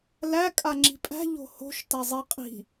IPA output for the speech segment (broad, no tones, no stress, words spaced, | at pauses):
læ kʼaŋ͡ǁi̤pʼæ̤ ʎo̤ho̤ʃ tazˤi qʼi̤